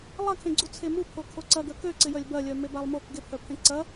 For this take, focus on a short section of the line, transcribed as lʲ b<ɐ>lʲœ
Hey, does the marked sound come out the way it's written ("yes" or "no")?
yes